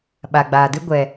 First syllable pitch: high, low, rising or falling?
low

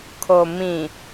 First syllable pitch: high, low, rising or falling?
low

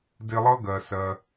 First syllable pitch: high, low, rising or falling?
high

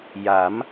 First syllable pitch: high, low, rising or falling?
rising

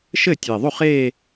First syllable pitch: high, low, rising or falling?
falling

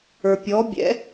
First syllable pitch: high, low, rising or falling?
low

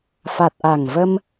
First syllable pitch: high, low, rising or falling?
low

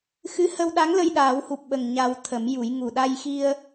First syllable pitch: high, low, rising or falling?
rising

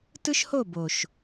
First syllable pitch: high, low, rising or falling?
high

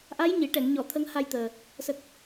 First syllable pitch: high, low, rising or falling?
rising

